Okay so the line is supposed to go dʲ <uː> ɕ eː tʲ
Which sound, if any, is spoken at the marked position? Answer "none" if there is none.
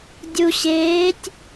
u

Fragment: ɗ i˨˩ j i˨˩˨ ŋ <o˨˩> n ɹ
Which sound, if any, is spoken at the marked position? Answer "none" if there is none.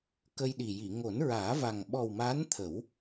o˨˩˦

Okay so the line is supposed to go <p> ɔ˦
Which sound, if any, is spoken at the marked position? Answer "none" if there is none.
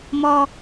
m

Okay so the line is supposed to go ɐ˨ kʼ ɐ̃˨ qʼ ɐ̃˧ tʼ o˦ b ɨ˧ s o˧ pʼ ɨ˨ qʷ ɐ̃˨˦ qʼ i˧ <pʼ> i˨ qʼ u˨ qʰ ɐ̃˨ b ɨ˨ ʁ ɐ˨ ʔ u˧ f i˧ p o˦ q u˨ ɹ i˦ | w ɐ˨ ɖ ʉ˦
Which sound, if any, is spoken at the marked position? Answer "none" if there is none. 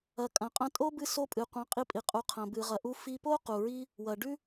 pʼ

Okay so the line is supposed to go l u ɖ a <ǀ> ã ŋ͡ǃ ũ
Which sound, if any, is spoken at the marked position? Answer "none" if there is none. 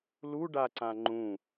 ǀ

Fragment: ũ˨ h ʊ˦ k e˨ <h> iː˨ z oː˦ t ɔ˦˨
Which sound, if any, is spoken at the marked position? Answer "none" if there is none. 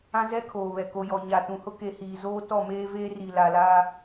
h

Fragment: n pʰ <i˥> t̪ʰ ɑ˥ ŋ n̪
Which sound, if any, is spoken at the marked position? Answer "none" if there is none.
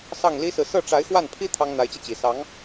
i˥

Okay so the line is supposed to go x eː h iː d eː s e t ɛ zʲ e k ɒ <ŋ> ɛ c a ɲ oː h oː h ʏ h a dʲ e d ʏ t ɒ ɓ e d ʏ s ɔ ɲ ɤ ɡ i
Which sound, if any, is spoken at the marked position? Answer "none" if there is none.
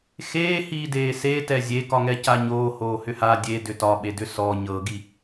ŋ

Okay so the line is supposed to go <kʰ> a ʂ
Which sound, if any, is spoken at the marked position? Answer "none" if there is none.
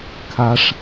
kʰ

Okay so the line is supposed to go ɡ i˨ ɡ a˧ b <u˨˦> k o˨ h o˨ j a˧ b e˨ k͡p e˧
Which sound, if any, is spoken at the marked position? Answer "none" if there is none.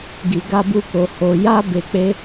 u˧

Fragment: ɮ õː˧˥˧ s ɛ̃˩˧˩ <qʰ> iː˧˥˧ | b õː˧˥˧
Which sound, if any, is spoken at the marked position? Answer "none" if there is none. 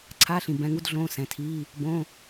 tʰ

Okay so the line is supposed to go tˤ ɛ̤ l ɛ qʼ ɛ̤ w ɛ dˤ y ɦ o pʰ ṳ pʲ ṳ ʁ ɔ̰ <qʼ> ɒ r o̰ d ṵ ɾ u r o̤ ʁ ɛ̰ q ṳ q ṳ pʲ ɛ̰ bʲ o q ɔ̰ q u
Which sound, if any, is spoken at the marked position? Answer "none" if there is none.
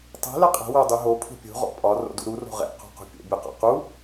pʼ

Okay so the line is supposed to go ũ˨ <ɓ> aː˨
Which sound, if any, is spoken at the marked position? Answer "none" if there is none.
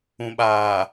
ɓ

